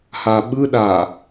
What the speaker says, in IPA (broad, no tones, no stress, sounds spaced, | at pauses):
h a ɓ ɯ ɗ a